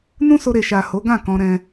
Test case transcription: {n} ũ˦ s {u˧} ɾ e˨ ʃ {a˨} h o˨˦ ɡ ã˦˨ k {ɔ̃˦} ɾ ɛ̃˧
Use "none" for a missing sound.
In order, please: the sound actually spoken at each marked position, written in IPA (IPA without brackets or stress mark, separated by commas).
n, o˧, a˨, ɔ̃˧